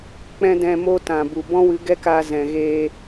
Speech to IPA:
k͡p ɛ̃˦ d ɛ̃˧ m o˦ t ã˨ b u˨ b ɔ̃˦ w ɨ˨˦ ɡ ɛ˦ k aː˧ z ɛ̃˨ ɣ eː˧

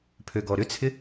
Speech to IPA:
pʰ ø ɡ ɔ ɾ ʏ t͡sʰ ɪ

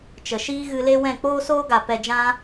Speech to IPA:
t͡ʃ ə˨ ʃ iː˦ ɣ ɨ˧ l e˦ w ɛ̃˦˨ k͡p oː˦ s oː˦ ɡ a˨ p ɛ˧ d͡ʒ ã˦

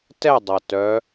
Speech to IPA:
t ɛ dˤ ʌ t œ

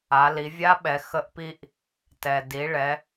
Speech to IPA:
a˩˧ l i˩˧ vʲ a˧˥ ɓ ɛ˩˧ x ə˧ ʔ p i˧ ʔ | t ɛ˩ d i˩˧ ɭ ɛ˩˧

